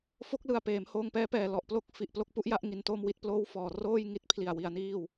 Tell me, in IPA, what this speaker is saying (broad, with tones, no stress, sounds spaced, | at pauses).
f o˦˥ k̚ l ɯ˨˩ a̯ p eː˩˦ m h oː˧ ŋ p ɛː˦˥ p ɛː˨˩ l ɔ˨˩ ʔ p l o˥˩ k̚ f i˨˩ ʔ p l o˥˩ k̚ p u˥˩ ʔ j a˥˩ ʔ ŋ i˧ n t oː˥˩ m w i˥˩ t̚ p l oː˥˩ w f ɔː˨˩ r oː˥˩ j ŋ i˥˩ t̚ pʰ l i˨˩ a̯ w i˧ a̯ n iː˥˩ w